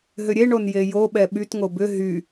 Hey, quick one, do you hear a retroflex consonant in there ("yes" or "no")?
yes